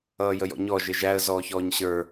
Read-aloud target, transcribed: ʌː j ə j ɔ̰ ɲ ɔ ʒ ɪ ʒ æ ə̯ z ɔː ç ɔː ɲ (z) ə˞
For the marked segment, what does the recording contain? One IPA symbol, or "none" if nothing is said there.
ɕ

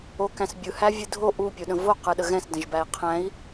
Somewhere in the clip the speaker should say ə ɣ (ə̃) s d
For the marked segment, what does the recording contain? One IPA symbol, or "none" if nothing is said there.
ɛ̃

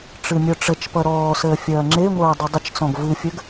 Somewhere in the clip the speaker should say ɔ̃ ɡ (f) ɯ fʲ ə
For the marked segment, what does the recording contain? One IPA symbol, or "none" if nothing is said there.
v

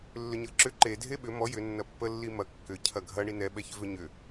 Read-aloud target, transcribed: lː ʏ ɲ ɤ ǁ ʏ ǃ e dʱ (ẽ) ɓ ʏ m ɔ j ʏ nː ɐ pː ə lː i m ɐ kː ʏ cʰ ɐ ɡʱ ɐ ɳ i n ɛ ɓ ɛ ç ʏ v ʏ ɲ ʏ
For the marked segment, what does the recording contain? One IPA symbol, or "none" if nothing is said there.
e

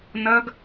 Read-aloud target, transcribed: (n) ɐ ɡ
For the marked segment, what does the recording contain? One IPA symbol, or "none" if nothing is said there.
n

